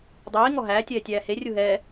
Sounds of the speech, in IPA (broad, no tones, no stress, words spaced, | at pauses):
dˤiː ŋɔɦæː tʲɛːtʲæːhe rʲuɦɛː